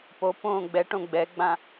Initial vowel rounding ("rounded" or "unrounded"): rounded